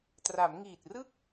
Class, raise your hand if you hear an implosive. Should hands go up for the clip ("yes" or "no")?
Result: no